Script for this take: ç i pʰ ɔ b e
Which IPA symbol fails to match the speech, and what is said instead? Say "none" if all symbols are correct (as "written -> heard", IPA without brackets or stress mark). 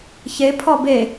i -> e